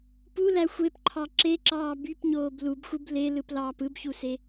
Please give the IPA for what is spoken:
pulæ xʷepǃʰɑ ǁeǁɑː bypɲoːb lubxʷɯb lelɯplɑːp ɯbçuse

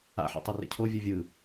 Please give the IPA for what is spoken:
a̰ħḛ tˤɯrḛcʰo vʲɯvʲɯ

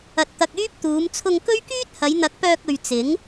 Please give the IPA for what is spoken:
ɐ˧t̚t̪ɐ˧k̚yː˥p̚ t̪uː˨˧mt͡sʰʊ˧ŋ kɵ˥ɥkyː˥t̚ hɐ˨˧jn̪ɐ˨˥k̚pœː˧k̚ɵ˨ɥ t͡sɪ˨˥ŋ

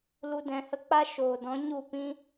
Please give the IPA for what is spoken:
lu˧dɛ̃˨hə˦k͡pa˦ ʃoː˨dɔ̃˨˦ɲu˦˨pĩ˦

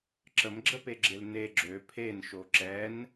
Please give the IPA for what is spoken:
ǁəmɡ͡ǁəpeɡ͡ǁel ne ɡ͡ǁø pʰenʃo ǁɛn

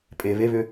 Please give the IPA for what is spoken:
pʼe βeβʏ

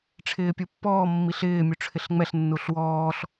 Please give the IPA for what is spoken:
ʈ͡ʂʰɪːpʲupːɔː mːiɬɪː mʲuʈ͡ʂʰɪɬŋ͡mɛɬ nːuɬwɔːɬ

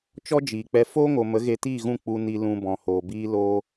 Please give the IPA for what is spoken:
t͡ʃɔ˦d͡ʒiː˨k͡pɛ˧ foː˦ŋo˨ mə˨˦ɣe˧tiː˦˨ɣũ˦˨ k͡pu˧ni˧ lũ˧bɔ̃˨hoː˨ biː˦loː˦

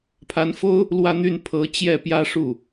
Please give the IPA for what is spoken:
pʰa˧˥nfo˥ʊ̯ | lwä˥˧n̪y˥˩n pʰɤ˧˥ t͡ɕjɛ˥˩pjä˥ʂu˥˩

